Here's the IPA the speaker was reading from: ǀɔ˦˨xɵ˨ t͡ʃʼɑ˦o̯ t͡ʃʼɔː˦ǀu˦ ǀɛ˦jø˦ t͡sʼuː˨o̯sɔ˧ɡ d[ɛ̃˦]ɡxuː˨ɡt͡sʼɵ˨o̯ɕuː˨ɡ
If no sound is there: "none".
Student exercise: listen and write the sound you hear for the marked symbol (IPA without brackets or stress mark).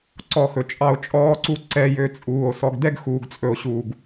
ɛ˦